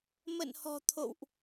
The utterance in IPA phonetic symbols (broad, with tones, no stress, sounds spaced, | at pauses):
m ə̰˧˨ n h ɔ̤˨˩ t̪ʰ o̰˧˨ w ʔ